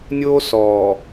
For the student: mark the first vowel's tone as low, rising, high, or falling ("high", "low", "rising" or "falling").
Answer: high